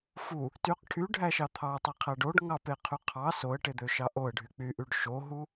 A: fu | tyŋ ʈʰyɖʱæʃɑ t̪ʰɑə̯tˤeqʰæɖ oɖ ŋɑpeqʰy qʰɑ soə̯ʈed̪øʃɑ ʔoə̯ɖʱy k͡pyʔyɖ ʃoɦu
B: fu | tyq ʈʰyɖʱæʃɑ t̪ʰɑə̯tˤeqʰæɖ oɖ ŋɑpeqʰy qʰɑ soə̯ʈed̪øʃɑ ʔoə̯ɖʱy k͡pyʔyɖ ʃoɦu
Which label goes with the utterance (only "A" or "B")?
B